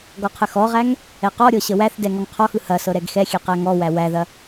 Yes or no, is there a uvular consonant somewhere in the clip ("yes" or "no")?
yes